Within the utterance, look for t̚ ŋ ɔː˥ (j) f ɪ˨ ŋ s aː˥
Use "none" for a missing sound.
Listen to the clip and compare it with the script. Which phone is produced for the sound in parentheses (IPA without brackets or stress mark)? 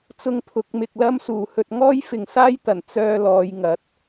j